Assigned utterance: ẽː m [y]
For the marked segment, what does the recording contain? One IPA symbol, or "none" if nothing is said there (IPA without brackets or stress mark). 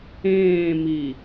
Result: i